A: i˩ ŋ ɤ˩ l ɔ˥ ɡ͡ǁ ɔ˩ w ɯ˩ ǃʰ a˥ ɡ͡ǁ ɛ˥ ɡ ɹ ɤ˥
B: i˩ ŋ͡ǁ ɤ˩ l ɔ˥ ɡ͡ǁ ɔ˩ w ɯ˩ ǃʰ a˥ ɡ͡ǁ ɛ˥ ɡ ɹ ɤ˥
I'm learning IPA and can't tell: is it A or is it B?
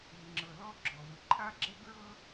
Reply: B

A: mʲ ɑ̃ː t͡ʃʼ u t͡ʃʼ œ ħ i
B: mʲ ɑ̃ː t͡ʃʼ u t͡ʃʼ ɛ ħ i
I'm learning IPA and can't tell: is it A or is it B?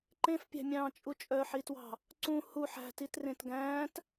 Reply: A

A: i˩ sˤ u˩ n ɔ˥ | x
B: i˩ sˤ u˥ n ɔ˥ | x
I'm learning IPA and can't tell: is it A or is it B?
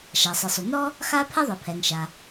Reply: A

